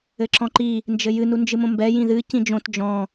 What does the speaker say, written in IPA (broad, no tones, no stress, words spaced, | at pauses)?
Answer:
ɘǁɔ̃ǃi | nd͡ʒɘjɨ nund͡ʒɨmõmbɛ jĩðɨ cĩd͡ʒõt d͡ʒɔ̃